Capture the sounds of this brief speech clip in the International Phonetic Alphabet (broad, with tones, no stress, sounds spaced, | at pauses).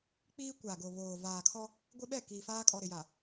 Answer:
k͡p iː˦ kʷ a˨ ɡ o˨ β oː˨ v aː˨ kʰ ɔ˦ | ɡʷ ɪ˦ ɓ ɛ˦˨ k iː˨ f aː˦ kʼ ɔ˨ ɾ ɪ˨ j a˨